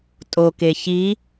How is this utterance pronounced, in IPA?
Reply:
tʼ o k e ç i

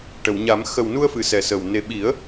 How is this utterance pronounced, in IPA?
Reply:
ʈ ə˨˩˨ w ɲ a˨˩˦ m x ə˨˩ w n u˧ ə̯ f ɨ˨˩˨ s ɛ˨˩ s əː˨˩ w n e˨˩ ɓ i˨˩˦ ə̯

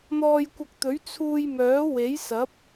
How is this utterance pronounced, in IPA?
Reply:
n̪ ɔː˧ j kʷ ɐ˧ k̚ t̪ ɵ˨˥ ɥ t͡sʰ uː˧ j m œː˨˥ w e˨˥ j s ɐ˨˥ p̚

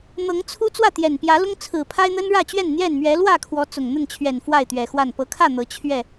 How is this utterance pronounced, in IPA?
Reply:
n̪ ɤ˨˦ ŋ t͡sʰ u˦ t͡s w ä˥˨ t̪ j ɛ˨˩ n p j ä˨˦ l ʊ˦ ŋ t͡sʰ ɹ̩˨˩ pʰ a˦ ɪ̯ n̪ ə˦ n ɻ ä˥˨ t͡ɕ ɥ ɛ˥˨ n n̪ j ɛ˥˨ n m ɥ ɛ˨˦ l w ä˥˨ kʰ w ɔ˨˦ t͡s ʊ˨˩ ŋ n̪ ə˥˨ n t͡ɕʰ ɥ ɛ˨˩ n f w a˥˨ ɪ̯ t̪ ɥ ɛ˨˩ x w a˥˨ n p ɤ˨˦ kʰ ä˥˨ n̪ ɤ˨˦ t͡ɕʰ ɥ ɛ˥˨

